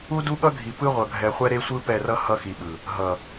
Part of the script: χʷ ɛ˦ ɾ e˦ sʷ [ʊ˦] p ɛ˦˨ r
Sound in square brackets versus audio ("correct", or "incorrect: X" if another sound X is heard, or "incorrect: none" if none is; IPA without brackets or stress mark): incorrect: ɯ˦